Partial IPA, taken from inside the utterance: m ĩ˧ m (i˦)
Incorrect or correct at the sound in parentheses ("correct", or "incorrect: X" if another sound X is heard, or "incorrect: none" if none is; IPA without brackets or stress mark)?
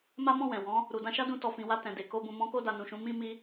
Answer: incorrect: i˧